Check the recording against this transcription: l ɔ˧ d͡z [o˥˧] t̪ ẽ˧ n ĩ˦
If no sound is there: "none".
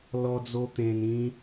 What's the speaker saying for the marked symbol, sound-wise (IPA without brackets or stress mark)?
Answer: o˧